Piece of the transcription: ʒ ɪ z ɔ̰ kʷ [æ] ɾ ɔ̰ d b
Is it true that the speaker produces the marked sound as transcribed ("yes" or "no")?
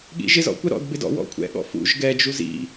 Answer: no